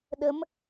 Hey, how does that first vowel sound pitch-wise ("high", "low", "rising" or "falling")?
rising